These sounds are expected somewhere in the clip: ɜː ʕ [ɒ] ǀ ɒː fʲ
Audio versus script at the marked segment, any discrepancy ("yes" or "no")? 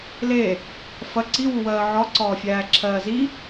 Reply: no